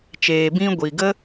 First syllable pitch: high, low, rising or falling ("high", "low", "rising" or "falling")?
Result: low